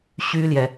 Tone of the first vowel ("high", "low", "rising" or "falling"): high